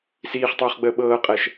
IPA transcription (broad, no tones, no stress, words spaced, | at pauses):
siːχtˤɵːχɡ͡bəː ɓɤːqʼɛʃ